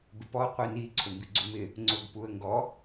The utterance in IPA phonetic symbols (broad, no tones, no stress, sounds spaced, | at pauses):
b ɪ p ɔ qʷ i n i ǀʰ ʊ m b i ɡ͡ǀ u m ɪ | ŋ͡ǀ ʊ ɡ p u ə̯ ŋ ɡ ɔ